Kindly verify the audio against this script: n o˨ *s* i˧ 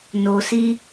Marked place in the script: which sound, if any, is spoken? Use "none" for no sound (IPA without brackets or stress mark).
s